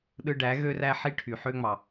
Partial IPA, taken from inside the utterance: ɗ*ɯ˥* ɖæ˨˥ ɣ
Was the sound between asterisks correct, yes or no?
yes